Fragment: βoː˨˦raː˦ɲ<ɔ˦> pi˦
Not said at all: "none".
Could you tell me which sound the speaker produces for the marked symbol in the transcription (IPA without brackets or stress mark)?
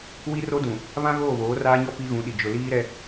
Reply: ɔ˦